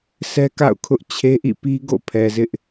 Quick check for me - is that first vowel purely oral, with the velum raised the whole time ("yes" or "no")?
yes